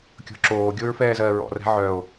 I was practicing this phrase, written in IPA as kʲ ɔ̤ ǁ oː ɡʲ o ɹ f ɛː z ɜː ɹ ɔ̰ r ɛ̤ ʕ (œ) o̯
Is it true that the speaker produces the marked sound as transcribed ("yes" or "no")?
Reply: yes